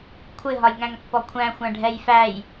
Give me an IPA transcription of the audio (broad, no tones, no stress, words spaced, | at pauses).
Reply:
kʷʰɪɦɒj ŋæ̃ŋpːɔkʷʰæ̃ xʷæ̃ɖʱɛjfæj